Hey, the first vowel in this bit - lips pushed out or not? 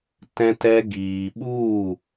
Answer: no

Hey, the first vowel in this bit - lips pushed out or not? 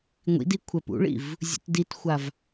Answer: no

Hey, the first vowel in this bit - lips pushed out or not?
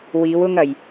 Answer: no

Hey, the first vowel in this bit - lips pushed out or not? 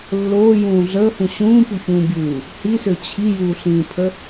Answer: yes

